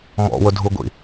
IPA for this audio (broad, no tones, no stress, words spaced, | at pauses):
mɔ̰wʊ dʱuɡʷḭ